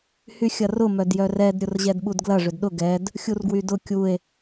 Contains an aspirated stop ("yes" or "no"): no